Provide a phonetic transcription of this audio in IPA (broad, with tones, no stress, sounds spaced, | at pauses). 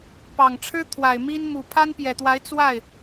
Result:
p ɑ˨˩ ŋ ʈ͡ʂʰ ɻ̩˥ t̪ʰ w a˨˩ ɪ̯ m i˥ n m u˨˩ pʰ a˥ n p j ɛ˨˩ t̪ w a˧˥ ɪ̯ t͡s w a˥˩ ɪ̯